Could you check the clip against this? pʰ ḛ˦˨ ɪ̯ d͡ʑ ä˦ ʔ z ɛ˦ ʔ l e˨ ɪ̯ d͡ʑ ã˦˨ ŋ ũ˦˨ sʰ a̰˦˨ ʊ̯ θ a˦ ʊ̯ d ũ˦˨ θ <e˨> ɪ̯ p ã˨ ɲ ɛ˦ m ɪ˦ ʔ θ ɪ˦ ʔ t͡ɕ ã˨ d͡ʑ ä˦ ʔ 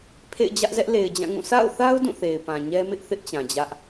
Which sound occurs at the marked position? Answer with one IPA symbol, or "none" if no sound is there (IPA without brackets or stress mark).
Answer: e˨